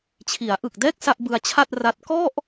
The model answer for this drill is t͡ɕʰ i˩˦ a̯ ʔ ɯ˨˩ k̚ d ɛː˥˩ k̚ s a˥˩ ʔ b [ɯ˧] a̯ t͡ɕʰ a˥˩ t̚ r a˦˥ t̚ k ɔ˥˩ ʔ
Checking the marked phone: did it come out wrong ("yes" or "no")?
no